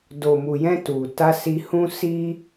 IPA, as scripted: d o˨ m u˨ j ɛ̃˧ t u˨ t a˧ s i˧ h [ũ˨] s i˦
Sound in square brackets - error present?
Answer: yes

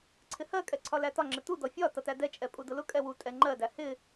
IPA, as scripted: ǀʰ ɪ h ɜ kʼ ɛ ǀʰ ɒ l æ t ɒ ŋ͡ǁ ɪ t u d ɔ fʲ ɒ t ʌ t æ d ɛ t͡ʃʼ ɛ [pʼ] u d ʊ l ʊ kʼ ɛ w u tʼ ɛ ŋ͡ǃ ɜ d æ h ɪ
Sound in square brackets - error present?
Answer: no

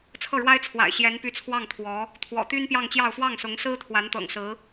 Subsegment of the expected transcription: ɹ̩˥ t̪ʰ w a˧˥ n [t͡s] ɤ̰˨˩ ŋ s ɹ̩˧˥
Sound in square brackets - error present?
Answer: yes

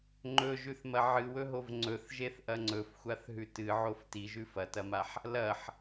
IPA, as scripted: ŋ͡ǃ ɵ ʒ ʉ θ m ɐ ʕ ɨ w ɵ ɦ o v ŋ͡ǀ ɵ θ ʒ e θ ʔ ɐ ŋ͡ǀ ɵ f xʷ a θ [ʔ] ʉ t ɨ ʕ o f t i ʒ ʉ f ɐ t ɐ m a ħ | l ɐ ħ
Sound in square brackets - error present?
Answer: yes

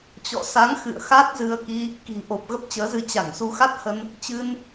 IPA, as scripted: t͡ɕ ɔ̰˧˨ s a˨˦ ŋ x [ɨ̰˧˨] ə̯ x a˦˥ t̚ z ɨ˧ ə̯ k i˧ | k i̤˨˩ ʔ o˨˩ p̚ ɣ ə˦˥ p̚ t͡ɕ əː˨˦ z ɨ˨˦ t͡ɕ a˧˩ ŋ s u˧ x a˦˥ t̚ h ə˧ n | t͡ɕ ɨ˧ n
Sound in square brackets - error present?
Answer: no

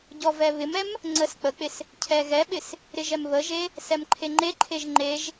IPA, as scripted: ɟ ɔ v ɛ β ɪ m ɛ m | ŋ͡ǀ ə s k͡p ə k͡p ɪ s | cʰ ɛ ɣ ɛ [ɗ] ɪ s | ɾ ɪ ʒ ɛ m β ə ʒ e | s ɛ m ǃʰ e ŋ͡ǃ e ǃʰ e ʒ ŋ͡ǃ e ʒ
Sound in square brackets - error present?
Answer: yes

